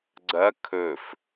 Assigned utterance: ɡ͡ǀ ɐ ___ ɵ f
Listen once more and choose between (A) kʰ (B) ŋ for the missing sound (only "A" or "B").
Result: A